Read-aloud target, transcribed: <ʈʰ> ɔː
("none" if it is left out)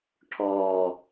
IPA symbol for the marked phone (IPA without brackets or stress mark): ʈʰ